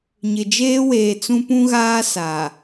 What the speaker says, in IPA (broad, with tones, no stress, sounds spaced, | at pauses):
ɲ ɪ˨ d͡ʒ eː˦ w eː˨ t͡s ũ˦ p ũ˦ ɣ aː˦ s a˨